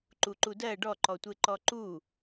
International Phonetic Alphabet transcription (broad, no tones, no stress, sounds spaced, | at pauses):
ǃ u ǃ u d ɜ ɖ ɔ ǃ ɔ tʷ e ǃ ɔ ǃ u